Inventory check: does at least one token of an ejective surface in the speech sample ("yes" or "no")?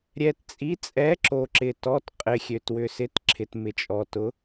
yes